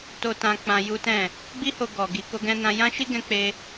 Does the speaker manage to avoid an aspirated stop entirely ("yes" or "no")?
yes